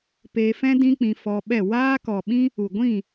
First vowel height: mid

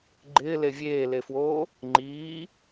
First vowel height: high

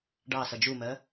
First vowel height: low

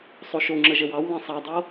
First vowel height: mid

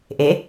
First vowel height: mid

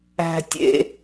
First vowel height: low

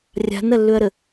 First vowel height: low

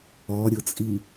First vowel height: mid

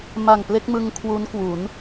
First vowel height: low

